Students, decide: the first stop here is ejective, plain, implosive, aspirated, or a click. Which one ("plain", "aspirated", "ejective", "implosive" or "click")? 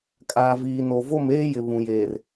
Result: ejective